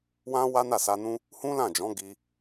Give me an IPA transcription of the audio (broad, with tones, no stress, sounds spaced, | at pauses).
w ã˦ w a˦ n a˦˨ s a˧ n ũ˦ | h ũ˦ l ã˦˨ d͡ʒ ɔ̃˨˦ ɡ i˧